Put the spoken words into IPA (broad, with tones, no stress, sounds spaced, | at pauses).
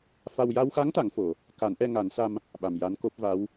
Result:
f a˧ w j a˧ w x a˧˥ ŋ t̪ a˨˩˨ ŋ f o˨˩˨ | k a˨˩˦ n ʔ ɛ˧ ŋ a˨˩˦ n s a˧ m | ɓ a˨˩ m j a˧˥ n k o˦˥ p̚ v a˧˥ w